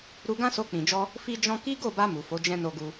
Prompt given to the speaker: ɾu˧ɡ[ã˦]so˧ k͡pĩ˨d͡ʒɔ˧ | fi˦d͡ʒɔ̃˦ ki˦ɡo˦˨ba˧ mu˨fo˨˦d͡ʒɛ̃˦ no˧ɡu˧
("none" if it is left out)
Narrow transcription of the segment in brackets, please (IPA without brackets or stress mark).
ã˦